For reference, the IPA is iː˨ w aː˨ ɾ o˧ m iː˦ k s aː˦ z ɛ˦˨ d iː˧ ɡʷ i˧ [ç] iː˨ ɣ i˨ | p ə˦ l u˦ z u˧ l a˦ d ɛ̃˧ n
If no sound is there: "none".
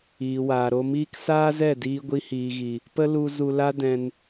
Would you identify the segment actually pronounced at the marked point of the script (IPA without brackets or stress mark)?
h